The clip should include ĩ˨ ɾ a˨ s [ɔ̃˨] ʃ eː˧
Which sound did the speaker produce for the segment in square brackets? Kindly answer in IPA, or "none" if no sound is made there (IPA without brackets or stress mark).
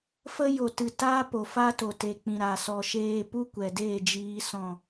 ɔ˨